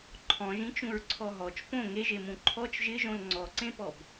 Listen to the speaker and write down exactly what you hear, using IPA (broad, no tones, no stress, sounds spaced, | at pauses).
ǃʰ ɔ̃ ʒ ĩ t͡ʃ ũ ɹ ǀʰ ɔ ɦ ɔ t͡ʃ p õ ŋ e ʒ e m ũ ǃʰ ɔ t͡ʃ ʒ ɪ ʒ õ l ŋ͡ǀ ɔ ǀ ẽ p ɔ b